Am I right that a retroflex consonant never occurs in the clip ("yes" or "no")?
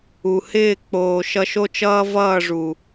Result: no